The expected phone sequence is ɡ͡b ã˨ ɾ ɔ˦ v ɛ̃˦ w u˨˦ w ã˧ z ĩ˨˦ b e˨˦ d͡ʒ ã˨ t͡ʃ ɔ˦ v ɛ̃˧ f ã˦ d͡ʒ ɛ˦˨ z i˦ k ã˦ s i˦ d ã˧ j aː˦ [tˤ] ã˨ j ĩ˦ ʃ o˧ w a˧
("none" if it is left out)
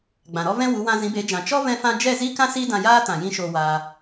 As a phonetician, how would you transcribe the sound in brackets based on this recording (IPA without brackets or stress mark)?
t